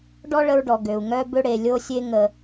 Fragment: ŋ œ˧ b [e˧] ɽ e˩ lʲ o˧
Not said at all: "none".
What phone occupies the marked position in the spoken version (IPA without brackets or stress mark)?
ø˧